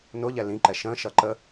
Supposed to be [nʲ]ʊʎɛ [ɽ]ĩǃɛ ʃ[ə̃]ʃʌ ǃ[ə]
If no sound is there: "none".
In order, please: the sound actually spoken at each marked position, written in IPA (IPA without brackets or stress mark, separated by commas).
n, l, ə̃, ə